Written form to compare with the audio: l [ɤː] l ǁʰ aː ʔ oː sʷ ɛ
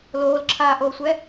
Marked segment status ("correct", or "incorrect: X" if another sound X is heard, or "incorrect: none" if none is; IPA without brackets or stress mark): incorrect: oː